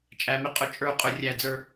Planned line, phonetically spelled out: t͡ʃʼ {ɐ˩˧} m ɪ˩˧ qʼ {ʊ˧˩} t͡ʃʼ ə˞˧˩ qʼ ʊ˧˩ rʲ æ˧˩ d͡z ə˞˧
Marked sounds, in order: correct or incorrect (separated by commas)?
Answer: incorrect, correct